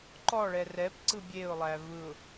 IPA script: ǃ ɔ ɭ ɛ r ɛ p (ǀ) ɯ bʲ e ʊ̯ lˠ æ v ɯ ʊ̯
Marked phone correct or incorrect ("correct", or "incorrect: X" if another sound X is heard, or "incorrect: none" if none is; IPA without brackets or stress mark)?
correct